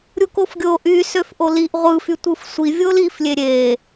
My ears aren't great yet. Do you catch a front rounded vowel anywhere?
yes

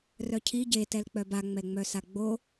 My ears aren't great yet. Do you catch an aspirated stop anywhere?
yes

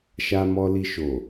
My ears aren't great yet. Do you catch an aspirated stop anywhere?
no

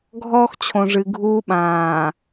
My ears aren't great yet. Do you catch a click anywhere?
no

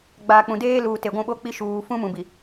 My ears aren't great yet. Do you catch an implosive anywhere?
yes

